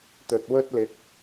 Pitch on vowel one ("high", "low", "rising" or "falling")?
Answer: low